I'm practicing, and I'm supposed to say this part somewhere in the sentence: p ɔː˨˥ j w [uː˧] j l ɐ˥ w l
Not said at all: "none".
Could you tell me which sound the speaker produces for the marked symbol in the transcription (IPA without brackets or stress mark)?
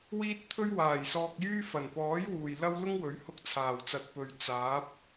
uː˨